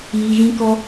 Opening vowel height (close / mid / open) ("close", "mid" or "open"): close